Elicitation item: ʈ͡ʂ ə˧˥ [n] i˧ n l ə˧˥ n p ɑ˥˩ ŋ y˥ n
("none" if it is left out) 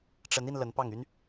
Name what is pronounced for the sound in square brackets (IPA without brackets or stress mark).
n